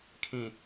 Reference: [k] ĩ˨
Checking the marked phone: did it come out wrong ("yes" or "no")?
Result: yes